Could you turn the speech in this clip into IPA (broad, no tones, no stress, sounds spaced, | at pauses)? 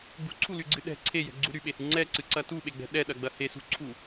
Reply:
ɡ͡b ṳ ǀʰ u l y ɡ͡ǀ ɨ ɗ ɛ̤ ǀʰ e j ɛ̤ ɡ͡ǀ u ɾ y ɓ e h ɨ ŋ͡ǀ ɛ ǀ ɨ ǀ ɐ t u ɓ e ɡ͡b ɛ̤ ɗ ɛ ɗ ɐ ɡ͡b ɐ h e s ṳ ǀʰ u